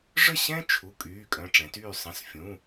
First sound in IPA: ʐ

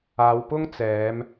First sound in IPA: aː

